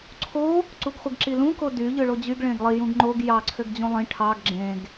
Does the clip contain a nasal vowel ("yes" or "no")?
yes